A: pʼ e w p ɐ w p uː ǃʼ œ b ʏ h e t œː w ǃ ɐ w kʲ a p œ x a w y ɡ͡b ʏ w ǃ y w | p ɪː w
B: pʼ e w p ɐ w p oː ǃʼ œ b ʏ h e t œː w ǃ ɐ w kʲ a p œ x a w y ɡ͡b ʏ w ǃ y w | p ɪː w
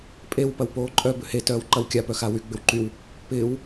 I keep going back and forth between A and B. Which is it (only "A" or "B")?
B